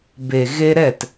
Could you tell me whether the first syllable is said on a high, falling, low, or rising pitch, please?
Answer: low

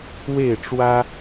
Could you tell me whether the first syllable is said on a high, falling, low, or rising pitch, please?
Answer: falling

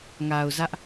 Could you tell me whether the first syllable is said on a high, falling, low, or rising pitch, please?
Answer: low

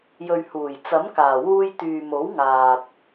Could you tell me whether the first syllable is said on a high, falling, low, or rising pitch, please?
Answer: low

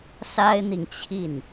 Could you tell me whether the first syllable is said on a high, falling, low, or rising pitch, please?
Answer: high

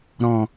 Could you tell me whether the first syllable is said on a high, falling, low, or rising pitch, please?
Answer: low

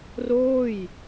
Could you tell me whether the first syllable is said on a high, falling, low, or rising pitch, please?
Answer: falling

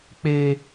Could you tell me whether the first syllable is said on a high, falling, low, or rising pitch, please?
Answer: high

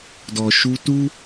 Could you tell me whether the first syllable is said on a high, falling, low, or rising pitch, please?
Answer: low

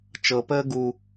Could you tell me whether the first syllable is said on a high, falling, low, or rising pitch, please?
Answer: low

